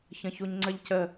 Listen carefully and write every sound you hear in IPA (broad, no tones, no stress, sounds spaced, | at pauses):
ç ə̃ ç u ɲ ŋ͡ǀ ə ʎ c ə